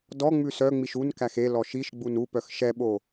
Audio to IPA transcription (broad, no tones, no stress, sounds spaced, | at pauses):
d ɔ ŋ͡m ʉ s œ ŋ͡m i ʃ u n k æ x e l ɔ ʃ i ʃ ɡ͡b u n u p œ x ʃ ɛ ɓ o